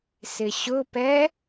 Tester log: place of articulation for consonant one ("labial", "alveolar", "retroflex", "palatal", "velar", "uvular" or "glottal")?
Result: alveolar